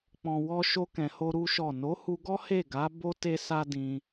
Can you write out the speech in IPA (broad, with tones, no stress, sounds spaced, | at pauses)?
k͡p ɔ̃˨ w ɔ˧ ʃ o˧ k ɛ̃˨ h o˧ ɾ u˦ ʃ ɔ˦˨ n o˨˦ h u˧ ɡ ɔ˦ h e˦˨ ɡ a˨˦ b o˦ t e˦ s a˦ d ĩ˧